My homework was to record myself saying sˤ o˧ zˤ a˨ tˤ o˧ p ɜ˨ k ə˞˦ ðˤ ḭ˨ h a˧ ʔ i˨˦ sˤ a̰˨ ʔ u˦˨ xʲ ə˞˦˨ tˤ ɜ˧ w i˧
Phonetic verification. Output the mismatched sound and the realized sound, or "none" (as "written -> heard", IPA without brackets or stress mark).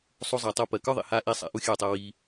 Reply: none